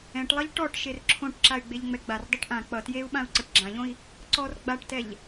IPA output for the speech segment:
ɛ̃ʈlˠʌʎ ʈɔʈ ʃerǁʰõʈǁay̯ ɡ͡beʎŋ͡mɛɡ͡bardˤɛʈ ʔã k͡pʌ tjeu̯ɓãu̯ ǀʌʈɡ͡ǁãʎõi̯ | ǀɔr ɡ͡baʈtɛʎ

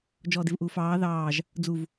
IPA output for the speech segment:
d͡ʒɔːdɪvʔuːfɑː ðɑːʒ | d͡zuv

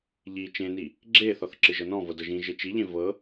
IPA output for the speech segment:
ʎi t͡ʃẽni | ɡ͡ǁeθɔθ ǁɨʒɤnɔ̃ vɤdɤʒĩ ʒet͡ʃiʎẽ vɤ

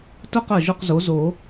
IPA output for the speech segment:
tʊ˦˨qə˨˩ ʒʊ˦˨qzo˩˥zo˨˩˦

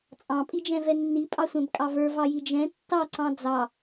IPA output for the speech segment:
t͡sʼɑ̃pʼid͡ʒɛ̃vɛ nːipʼɑsʷɛ̃bkʼɑ və˞vɑji d͡ʒɛ̃ tːɑǀɑ̃ d͡zɑ

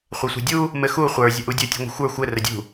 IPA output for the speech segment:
χʷɛsʷɛ̤dʲu | mɘxu χʷə˞ zʲəʔudʲɘ tʲṳŋʷə̤xʷə˞ xʷɘ rədʲṳ

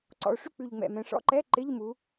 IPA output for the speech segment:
ǀɔ̰˨˩o̯ʂy˦˨k͡pʉ˨˩ʎ ŋ͡mɛ̰˨˩ mɛ̃˩˧ʂɔ̰˦˥ǃɛ˧˥˧ ǃɪ˧˥˧ʎ mu˩˧

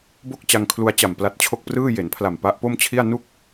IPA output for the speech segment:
bo˥˩k̚t͡ɕa˧ŋkʰlu˧a̯t͡ɕa˨˩m pla˦˥t̚t͡ɕʰo˥˩k̚prɯː˥˩ je˩˦npʰla˨˩m pa˦˥ʔpo˥˩mt͡ɕʰi˥˩a̯ nu˥˩k̚

